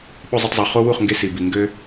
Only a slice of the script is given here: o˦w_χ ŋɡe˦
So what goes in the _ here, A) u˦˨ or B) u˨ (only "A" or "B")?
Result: A